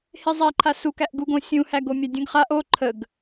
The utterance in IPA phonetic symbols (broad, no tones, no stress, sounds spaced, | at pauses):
h e zˤ æ ǃʰ a s u k æ ʔ ɡ u ɡ õ sʲ ũ h æ ɡ o mʲ a dʲ ə̃ ɡ χ a ʔ o ǃʰ ə ɡ